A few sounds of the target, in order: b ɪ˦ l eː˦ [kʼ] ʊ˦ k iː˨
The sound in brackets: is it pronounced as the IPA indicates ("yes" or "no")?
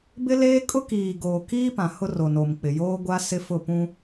yes